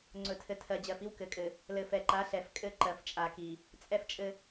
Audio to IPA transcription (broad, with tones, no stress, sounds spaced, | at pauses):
ŋ͡ǀ ɵ˨ tʰ ɘ˨ tʰ ɜ˨ d͡ʑ ɜ˨ f i˦ w k ɘ˨ kʼ ɘ˨ | l ɘ˨ f ɛ˨ ǃ a˨˦ ɬ ɛ˨ f kʼ ɘ˦˨ ǃ ɜ˨ f t͡ʃʼ a˨ k i˨ | t͡sʼ ɛ˦ f t͡ʃʼ ɘ˦